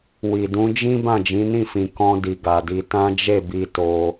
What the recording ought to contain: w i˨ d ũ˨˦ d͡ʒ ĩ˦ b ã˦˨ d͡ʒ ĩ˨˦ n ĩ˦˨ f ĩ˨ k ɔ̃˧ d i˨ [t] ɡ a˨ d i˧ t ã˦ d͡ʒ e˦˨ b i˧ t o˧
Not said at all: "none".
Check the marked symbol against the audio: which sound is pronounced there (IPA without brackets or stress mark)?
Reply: none